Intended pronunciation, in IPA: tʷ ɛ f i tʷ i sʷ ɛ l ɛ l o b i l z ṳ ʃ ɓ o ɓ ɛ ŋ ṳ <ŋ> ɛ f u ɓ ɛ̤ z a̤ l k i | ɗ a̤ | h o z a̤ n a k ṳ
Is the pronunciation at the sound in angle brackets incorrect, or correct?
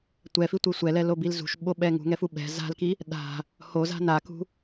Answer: correct